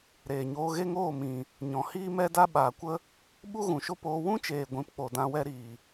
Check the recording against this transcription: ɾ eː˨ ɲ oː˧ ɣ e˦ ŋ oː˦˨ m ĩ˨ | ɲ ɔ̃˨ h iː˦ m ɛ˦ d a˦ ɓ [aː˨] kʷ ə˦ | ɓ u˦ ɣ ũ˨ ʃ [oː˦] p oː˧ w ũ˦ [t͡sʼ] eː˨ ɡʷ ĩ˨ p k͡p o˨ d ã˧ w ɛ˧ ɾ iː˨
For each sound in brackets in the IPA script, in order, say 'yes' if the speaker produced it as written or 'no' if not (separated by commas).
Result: yes, no, no